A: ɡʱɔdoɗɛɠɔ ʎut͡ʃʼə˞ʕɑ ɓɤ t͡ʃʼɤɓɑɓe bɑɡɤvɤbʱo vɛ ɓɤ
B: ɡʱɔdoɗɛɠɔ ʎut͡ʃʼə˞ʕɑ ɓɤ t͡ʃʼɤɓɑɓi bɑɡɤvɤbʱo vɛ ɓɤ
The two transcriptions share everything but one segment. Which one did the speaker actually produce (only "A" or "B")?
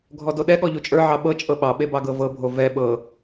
A